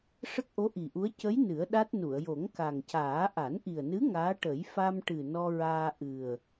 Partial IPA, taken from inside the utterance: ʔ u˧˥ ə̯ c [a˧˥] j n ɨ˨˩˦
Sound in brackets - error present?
yes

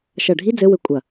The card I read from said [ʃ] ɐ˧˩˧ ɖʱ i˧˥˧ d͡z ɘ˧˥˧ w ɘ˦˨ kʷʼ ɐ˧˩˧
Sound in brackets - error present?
no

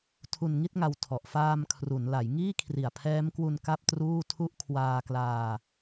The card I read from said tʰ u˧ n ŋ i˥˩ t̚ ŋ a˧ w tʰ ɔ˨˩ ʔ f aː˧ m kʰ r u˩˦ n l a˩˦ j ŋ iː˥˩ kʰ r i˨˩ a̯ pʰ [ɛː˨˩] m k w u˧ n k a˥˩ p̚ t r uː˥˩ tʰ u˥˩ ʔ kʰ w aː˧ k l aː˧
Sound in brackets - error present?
yes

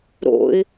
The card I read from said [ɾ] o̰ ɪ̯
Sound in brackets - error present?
no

